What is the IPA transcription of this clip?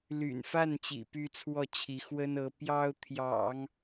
ly̰˨˩nfa˥˩nt͡ɕḭ˨˩ py˥˧t͡sʰwɔ˥˩t͡ɕʰi˧˥ xwə˥nɤ˧˥ pjɑ˥ʊ̯ t̪ʰjɑ̰˨˩˦ŋ

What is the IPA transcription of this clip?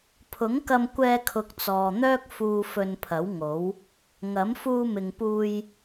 pʰʊ˨˥ŋkɐ˧mkʷɛː˧kʰʊ˨k̚ t͡sɔː˨n̪œː˥k̚fuː˧ fɵ˧npʰɐ˨˥wŋo˨˥w | ŋɐ˨˥m fuː˧mɪ˨ŋpuː˧j

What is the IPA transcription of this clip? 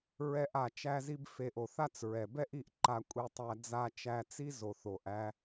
ɹɛ˥ʔa˧ t͡ʃæ˥zi˥b fe˧ʔ o˩θa˥t͡sɹɛ˩ bɛ˥ʔi˧ʔ ǃa˧ kʷʼe˧tˤæ˧ d͡za˧ t͡ʃæ˧t͡si˥ zo˩θ o˩ʔæ˧

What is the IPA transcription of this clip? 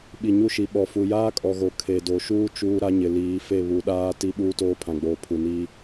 ɓi˨ɲu˦ʃi˨ ɓɔ˨fu˨ jaː˦kʼɔ˨ɣo˨ kʰe˨do˨ʃuː˦ t͡ʃuː˦ɾa˦ɲɪ˨ liː˨˦fe˦˨ βu˨ɗaː˦ ti˦ ɓuː˦toː˦pʰã˨ɡ͡boː˨ pʰu˨niː˦

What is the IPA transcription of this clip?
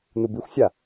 nubixʷsʲa

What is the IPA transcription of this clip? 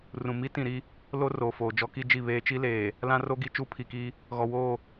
rũ˨ mi˦tĩ˨ɾi˦ | lo˦ roː˨foː˨ d͡ʒɔ˦ki˦d͡ʒi˦˨βeː˦ t͡ʃi˦leː˨ | lã˦ro˦ɡi˦ t͡ʃu˦pʰi˨ki˦ | ɣɔ˨woː˦˨

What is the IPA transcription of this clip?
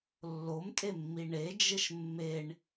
lːomtʼemːi ɳed͡ʒɘʃ mːeɳ

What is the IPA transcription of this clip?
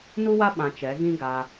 nu˦wa˦ ɓã˧t͡ʃɛ˨˦ ɣĩ˦ɡa˧

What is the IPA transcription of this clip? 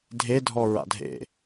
dʱedʱɔ ɹa̰dʱḛ

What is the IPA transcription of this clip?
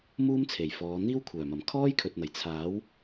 muː˥mt͡sʰe˨˩jfɔː˨˧ n̪iː˥wkʷʰœː˨˩mɐ˨˩m kʰɔː˥jkʰɵ˨t̚n̪ɐ˨˩j t͡sʰaː˨˥w

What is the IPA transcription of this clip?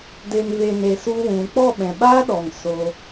de˧nve˧ ne˧su˦wũ˨˦ k͡pɔ˦˨ɓɛ̃˨ɓaː˦ɗɔ˨ŋ so˦

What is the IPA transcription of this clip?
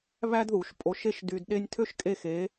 βæ˥dðu˩˥ʃpʼo˧˥ʃe˥ʃ dy˧dɗe˥nʲ tʰø˥ʃkʼe˥˨xe˧˥

